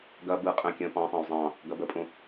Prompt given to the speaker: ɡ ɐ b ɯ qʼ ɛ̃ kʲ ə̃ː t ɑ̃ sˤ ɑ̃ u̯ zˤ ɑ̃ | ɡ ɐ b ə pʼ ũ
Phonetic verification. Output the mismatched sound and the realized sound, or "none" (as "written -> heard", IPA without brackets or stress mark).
t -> p